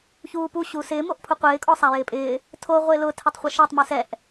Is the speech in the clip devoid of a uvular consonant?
no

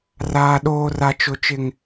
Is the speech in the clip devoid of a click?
yes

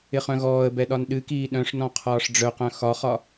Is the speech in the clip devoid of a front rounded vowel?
no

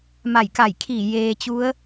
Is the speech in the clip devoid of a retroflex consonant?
yes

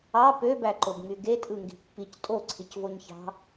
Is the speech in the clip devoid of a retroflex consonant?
yes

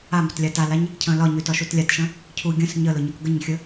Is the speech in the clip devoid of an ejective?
yes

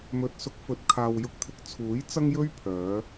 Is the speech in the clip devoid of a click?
yes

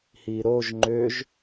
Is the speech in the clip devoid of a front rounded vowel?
no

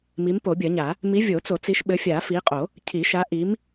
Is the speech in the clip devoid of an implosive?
no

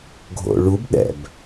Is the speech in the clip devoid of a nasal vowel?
yes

